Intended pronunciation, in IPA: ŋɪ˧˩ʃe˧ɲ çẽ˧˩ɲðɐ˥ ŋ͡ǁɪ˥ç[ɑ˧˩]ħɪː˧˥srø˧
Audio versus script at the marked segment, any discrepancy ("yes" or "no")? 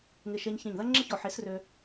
yes